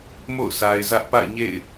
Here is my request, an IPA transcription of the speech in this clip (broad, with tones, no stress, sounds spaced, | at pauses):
m o̰˦˨ ʊ̯ sʰ a˨ ɪ̯ z ä˦ ʔ p a̰˦˨ ɪ̯ ɲ ḛ˦˨ ɪ̯